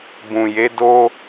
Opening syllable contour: low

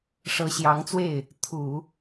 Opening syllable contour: rising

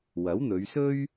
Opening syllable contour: rising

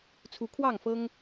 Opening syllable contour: rising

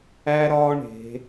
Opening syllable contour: high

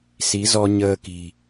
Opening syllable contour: rising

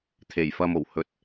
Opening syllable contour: low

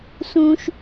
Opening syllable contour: high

